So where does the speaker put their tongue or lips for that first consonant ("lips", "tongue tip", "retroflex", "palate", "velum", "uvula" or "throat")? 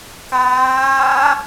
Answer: velum